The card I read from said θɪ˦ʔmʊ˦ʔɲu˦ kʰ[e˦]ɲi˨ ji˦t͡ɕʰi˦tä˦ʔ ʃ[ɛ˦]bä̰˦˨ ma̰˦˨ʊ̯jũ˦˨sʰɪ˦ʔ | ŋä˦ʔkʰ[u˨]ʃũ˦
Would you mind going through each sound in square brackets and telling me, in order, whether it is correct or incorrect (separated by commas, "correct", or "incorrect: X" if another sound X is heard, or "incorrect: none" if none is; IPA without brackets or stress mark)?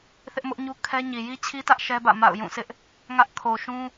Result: incorrect: ɛ˦, correct, incorrect: o˨